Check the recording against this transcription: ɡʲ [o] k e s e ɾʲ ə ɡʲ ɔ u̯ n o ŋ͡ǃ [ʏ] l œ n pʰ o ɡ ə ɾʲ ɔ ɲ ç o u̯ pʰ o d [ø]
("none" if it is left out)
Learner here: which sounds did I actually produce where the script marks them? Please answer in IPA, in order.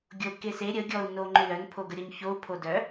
o, ʏ, œ

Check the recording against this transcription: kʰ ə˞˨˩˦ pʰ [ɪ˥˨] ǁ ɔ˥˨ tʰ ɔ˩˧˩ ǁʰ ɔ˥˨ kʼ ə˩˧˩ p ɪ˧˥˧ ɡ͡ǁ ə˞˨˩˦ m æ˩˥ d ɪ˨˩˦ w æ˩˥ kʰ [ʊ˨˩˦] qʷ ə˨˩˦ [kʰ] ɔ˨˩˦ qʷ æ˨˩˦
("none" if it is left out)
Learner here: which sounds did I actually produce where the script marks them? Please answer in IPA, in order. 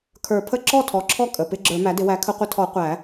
ə˥˨, ə˨˩˦, tʰ

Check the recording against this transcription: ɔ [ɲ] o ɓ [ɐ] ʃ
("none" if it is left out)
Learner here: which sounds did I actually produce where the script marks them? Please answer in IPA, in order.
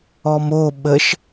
m, ə

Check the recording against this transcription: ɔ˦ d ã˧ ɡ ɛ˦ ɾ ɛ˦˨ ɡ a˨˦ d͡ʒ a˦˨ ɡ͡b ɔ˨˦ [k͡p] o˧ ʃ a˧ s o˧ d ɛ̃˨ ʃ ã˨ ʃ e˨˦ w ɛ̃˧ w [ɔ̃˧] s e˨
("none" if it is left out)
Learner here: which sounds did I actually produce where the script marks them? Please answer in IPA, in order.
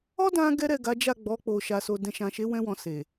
k͡p, ɔ̃˧

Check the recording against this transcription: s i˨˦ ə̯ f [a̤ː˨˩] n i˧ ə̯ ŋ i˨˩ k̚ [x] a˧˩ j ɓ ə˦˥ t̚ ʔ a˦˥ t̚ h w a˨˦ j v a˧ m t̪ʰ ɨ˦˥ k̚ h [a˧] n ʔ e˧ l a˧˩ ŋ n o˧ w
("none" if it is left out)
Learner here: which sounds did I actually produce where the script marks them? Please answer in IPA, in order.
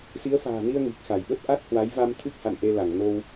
a̤ː˨˩, x, a̰˧˨

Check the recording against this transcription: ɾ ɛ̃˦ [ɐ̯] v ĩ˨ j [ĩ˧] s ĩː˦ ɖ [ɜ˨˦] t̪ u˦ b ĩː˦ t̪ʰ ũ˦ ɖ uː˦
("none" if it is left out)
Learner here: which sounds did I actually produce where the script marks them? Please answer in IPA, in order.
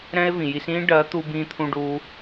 e̯, i˧, ɜ˨˦

